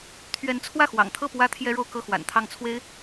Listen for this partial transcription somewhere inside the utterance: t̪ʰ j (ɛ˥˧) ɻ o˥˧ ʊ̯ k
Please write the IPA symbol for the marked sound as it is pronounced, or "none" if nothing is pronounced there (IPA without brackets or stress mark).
ɛ˥